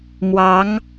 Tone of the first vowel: rising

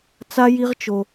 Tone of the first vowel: high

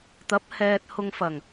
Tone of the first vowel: rising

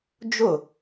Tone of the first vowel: falling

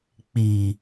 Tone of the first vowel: low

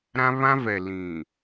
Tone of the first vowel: high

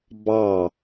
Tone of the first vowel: falling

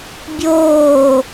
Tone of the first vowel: falling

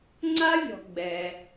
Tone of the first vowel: high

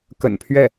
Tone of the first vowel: low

